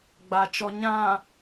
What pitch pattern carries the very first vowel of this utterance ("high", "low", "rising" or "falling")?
low